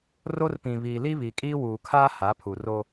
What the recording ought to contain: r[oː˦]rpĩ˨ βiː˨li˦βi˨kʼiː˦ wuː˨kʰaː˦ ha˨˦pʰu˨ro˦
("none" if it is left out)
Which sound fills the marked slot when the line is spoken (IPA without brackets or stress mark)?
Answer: o˦